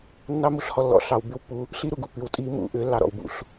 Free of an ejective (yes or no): no